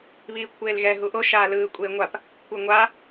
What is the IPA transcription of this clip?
β iː kʷʰ eː l ɣ ɛ ɦ u ʔ o ʃ aː l ɯː kʷʼ eː ŋʷ a p | kʷʰ ɯ ŋʷ a

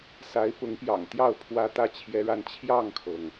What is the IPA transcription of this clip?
s a˧˥ ɪ̯ p ʊ˧˥ ŋ p j ɑ̰˨˩ ŋ t̪ j ɑ˥˩ ʊ̯ pʰ w ä˥ t̪ ä˥˩ t͡ɕʰ j ɛ˥ ɻ a˥˧ n t͡ɕʰ j ɑ˥˩ ŋ kʰ ɤ˩ ŋ

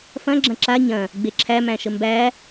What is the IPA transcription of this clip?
f ɐ̃ ɡ͡ǁ ɐ̃ ǁ a ɲ ɐ̃ | ɡ͡b e ǁʰ æ m æ̃ ʃ ə m b æ

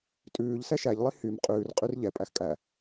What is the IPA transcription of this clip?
tʼ ʉː ʎ s ɛ ʃ æ ʎ lˠ i h y m qʼ ʉː r qʼ y r ʎ ɛ pʼ æ x kʼ æ

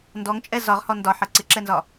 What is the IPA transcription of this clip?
n d ɔ ŋ t͡ʃʼ ɛ z ɒ ʁ h ɔ n d ɒ ħ ɜ ǀ ɪ ǁ ɛ n z ɒ

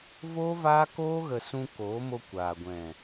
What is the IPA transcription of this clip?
v oː˦ v aː˦ k oː˦ ɣ ə˨ s ũ˧ k oː˨˦ m o˧ kʷ aː˨ ɡʷ ɛ̃˨

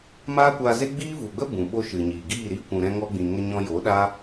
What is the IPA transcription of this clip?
m aː˦ kʷ aː˧ z e˦ ɡ͡b iː˦ v u˨ ɡ͡b ə˦ b ũ˨ ɓ o˦ ʃ ɨ˨ ɲ iː˨ ɡ iː˦˨ ɾ i˦ kʷ ũ˨ ɾ ɛ̃˧ ŋ ɔ˧ ɡ͡b ĩ˨ ŋ ə˧ ɲ ɔ̃˧ j o˨˦ ɗ a˦

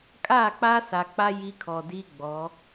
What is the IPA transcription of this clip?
kʼ a˦˨ k͡p a˦ s a˨ k͡p a˦ j i˦ kʰ ɔ˨ d i˦ ɡ͡b ɔ˨˦

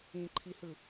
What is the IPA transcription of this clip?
ĩ ǃʰ i h ɯ

